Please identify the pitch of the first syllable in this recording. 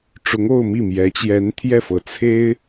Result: rising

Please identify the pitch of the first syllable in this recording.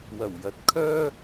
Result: low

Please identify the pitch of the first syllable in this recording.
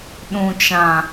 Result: low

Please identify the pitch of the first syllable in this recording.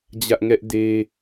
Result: high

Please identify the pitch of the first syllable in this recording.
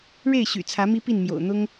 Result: falling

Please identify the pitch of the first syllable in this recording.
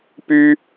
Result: high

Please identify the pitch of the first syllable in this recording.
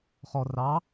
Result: low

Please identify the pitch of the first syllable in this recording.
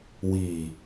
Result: low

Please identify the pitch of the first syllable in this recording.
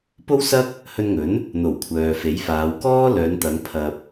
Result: high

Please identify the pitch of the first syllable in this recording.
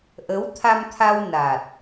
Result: rising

